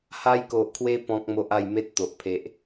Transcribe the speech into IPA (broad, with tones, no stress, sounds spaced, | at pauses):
h a˧ j k o˨ ʔ kʰ w e˧ p ɔ̃˦ k̚ m o˦ ʔ a˥˧ j m e˦ t̚ t̪ o˨ ʔ pʰ e˨ ʔ